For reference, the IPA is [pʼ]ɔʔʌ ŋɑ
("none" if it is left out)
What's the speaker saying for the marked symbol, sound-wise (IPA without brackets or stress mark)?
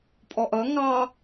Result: pʼ